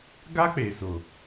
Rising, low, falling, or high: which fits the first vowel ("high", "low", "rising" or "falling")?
high